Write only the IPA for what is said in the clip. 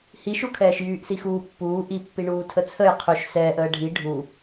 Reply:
hiʃukʰɛːʃjyːʔ sixuːpːuː ʔipːiɳuː tʰət͡sʰəj qʰyʃ sɛːʔ əːɖʱi ɖʱu

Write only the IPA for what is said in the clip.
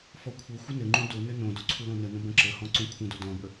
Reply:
fɔkʷʰɘxʷə nɘŋ͡ǃũ do nɘnõdo ǀʰulõnənə̃ bə̃ǁəhɔ̃ ǀõkʷʰə̃do dɔ̃bə

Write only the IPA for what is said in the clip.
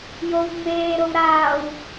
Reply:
jowŋ͡meːɾow ɾaːw

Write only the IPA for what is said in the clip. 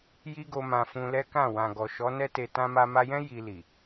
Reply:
ji˦ɡo˧ mã˧fũ˧lɛ˦kã˦˨ wã˨ɡɔ˨ʃɔ˨˦ nɛ˦te˧ tã˧ma˧ma˧jɛ̃˦ ji˧li˨

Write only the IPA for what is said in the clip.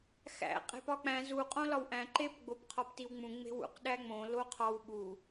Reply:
xæ̰ qʼe̤pɒk͡pæ̃ zu qʼõlɒwʔæ̃ ǃep ɡ͡bopqʰɒptiwŋ͡mũ ŋ͡me̤wṵq ɗæŋ͡mõ loqʰɒw ɓu

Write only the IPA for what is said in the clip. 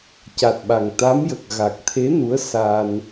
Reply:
ca˨˩t̚ɓa˨˩ŋt̪a˧˥mjə˨˩k̚ ɣa˨˩k̚t̪ʰe˧˥ nu˧˥ə̯sa˧n

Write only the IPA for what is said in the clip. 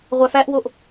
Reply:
ʁʷæfæʔwoʔ

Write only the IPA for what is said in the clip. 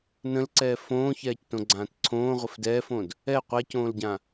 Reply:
nə̃lǀɛː fõːçɛːctõɡ͡ǀãːt ǀʰõːʁʷəf dɛːfõd | ɛ qʷɛcõːlɟã

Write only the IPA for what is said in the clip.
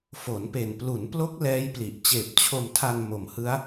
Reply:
fo˩˦npe˨˩n plu˩˦nplo˦˥k̚ lɛː˦˥jpli˨˩ʔ t͡ɕeː˨˩p̚t͡ɕʰo˧mtʰa˧n mo˨˩mhɯ˦˥a̯

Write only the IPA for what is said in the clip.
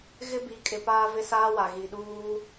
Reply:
ɣɪ˦bi˨˦kʼɪ˨ paː˦vɪ˦saː˦wa˨ ɣi˨ɗuː˦

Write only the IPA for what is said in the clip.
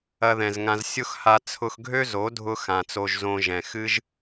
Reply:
ɐ˧ðɛ̃˨zŋã˧z sʲʊ˦xha˧ t͡sʰʊ˧xɡʱø˦ zo˨˦dʱʊ˧ xã˨t͡so˧ʒzõ˧ ʒɛ̃˨xɨ˦ʒ

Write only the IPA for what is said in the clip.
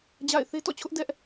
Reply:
d͡ʑa̰˦˨ɪ̯ θe˦tɔ̰˦˨t͡ɕʰʊ˦ʔ dɛ˦ʔ

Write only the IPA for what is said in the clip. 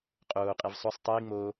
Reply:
qʼoːqʼiv sˤosˤ tˤiː ŋ͡mo

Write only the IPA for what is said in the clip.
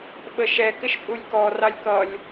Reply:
ɓəʃɛ kɪʃpʼulʲkɔ rɑlʲkʌlʲ

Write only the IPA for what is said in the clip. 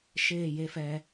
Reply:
ʃeː˦˨je˦fɛ˧

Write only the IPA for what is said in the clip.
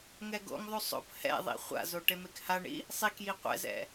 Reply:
ŋɛɡo̰ŋðˤu sˤo̰p hɛ̰ðˤḭ χʷa̰zo ʈemekhaɳḭ | sˤikji qʷɛ̰zɛ̰

